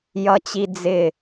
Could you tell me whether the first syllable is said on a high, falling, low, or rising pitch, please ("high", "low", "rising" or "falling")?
high